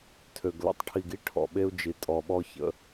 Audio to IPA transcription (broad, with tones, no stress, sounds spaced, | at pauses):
tʰ ø˨ ɡ l ə̰˨ tˤ ʈʰ i˨ ɡ i˦ ʈʰ ɔ̰˨ ɓ e˦ u̯ d͡ʒ i˨ tʼ ɔ˨ ɓ ɔ˦ ç ə̰˨˦